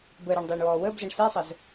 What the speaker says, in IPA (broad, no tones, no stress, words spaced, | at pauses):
bəːɾəːɳ dˤeːɳwɔːwəːbzɤɳ sesˤəz